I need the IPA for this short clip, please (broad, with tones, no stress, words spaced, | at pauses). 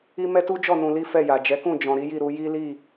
i˦ mɛ˦tu˦d͡ʒɔ˦˨ nũ˧li˦ fɛ˦˨ja˨ d͡ʒɛ˨˦kũ˦˨ d͡ʒɔ̃˨ ɾi˨˦ji˦˨ ɾu˧ ji˦li˦˨